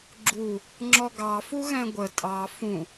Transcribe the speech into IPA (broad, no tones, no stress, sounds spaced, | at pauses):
ɡ͡ǁ u | ŋ͡ǁ ɔ ɡ ɑ f u ɣ ɛ̃ ɡʷ ə tʼ ɑ f ũ